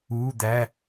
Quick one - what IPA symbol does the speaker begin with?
uː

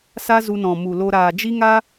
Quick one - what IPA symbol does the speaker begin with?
s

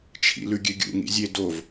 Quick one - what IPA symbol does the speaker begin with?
t͡ʃʰ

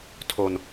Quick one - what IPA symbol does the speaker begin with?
tʰ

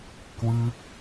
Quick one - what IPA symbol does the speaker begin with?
k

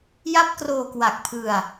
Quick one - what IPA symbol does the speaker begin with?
j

